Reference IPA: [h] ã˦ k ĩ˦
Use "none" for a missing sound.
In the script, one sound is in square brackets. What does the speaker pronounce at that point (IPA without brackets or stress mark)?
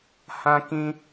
h